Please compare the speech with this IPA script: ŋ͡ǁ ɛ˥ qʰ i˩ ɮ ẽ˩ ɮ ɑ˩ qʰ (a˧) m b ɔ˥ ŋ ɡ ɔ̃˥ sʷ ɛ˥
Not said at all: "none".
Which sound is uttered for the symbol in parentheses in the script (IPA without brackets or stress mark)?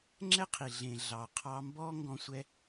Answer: ɑ˧